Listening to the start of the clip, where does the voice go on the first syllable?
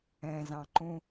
low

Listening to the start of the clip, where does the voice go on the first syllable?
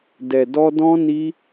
low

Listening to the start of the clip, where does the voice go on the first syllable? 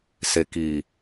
low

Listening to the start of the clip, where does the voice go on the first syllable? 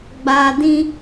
low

